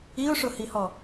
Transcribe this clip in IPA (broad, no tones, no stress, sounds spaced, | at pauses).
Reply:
i ʊ̯ ʂ ʊ h i h ɔ